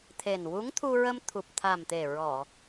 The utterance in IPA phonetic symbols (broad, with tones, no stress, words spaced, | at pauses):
t̪ʰe˨˩nwu˧˥ŋt̪ʰu˧ɹə˧m t̪ʰu˨˩p̚t̪ʰa˨˩mt̪e˨˩ ɹɔ˨˩˨